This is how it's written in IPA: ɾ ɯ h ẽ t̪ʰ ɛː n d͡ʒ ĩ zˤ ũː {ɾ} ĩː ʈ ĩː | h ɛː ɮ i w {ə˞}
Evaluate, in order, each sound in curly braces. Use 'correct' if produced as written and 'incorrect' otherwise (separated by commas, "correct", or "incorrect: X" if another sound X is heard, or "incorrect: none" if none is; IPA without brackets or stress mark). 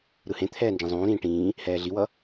correct, incorrect: ʌ